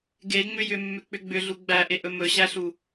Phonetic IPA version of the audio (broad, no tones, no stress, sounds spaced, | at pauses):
ɡ e ŋ͡m ʏ j ʏ mː ʏ k͡p ʏ ɡ͡b ʏ ɮ u ɡ͡b æ ʔ e ʔ ɵ m ɵ ɕ æ ɬ u